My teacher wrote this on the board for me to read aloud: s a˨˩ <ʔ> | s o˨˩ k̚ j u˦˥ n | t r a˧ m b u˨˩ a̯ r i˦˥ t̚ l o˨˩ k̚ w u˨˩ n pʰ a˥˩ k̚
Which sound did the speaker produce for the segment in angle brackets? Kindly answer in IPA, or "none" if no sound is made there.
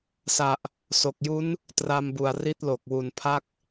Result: ʔ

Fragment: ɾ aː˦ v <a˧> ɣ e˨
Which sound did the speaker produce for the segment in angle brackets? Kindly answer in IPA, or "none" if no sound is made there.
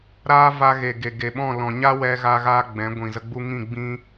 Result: a˧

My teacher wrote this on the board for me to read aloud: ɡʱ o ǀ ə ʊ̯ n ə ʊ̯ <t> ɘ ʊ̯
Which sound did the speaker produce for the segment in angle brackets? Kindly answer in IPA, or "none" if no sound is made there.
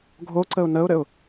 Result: ɾ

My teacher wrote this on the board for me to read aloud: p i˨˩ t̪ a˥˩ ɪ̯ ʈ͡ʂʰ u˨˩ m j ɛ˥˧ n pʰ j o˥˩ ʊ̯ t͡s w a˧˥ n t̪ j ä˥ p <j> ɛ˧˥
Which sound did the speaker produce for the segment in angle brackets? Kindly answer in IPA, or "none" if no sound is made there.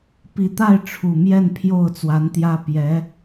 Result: j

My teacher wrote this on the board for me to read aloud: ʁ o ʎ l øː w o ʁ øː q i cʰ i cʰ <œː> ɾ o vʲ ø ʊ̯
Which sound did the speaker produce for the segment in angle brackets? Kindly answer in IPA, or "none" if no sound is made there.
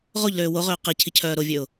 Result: œː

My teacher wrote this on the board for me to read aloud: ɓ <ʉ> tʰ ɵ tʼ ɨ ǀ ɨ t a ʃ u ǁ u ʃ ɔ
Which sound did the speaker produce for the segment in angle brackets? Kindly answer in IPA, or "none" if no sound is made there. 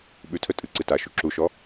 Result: ʉ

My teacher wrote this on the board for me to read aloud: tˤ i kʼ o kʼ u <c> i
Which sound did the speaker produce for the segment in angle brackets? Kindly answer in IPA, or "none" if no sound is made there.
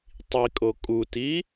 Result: t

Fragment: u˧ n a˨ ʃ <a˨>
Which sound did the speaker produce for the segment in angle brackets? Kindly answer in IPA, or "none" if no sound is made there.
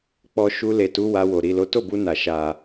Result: a˨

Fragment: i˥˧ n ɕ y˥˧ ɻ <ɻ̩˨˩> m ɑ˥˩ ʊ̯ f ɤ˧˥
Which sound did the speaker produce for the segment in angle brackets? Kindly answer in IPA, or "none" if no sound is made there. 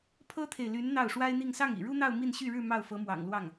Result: ɻ̩˥˧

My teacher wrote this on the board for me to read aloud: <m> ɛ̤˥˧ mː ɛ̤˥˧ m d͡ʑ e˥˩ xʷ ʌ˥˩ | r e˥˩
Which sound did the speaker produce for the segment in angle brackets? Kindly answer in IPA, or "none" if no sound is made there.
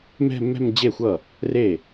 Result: m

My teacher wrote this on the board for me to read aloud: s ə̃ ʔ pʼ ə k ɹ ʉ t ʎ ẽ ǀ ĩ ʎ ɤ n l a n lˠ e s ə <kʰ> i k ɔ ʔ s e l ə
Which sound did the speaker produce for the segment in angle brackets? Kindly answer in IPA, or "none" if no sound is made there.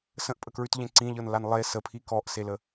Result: pʰ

